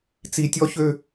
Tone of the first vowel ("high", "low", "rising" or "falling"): low